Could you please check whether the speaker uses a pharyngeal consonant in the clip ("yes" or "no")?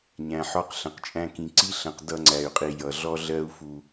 yes